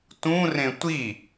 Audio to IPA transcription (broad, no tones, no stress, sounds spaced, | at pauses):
t ũ r ẽ tʷ i